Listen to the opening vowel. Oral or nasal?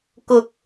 oral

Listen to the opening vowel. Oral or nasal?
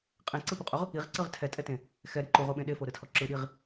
nasal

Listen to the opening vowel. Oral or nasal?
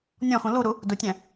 nasal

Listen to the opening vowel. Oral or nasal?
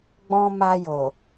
nasal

